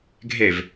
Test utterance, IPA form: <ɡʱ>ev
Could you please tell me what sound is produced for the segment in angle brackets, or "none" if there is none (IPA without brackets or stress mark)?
ɡʱ